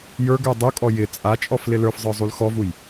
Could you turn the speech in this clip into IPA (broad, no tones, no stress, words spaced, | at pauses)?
jə˞ɡə˞ dˤukʼɔ jɪ t͡sʼat͡ʃʼɔf lɪlə˞fzˤə˞ zˤulxɔvuj